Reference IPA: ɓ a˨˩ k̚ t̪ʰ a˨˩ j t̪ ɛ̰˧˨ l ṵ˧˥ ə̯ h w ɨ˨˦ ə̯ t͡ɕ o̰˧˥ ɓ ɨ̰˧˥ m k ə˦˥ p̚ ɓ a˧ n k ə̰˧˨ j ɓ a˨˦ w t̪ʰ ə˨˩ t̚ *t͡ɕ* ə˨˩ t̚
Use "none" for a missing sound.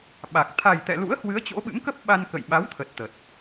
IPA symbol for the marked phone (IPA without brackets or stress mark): t̪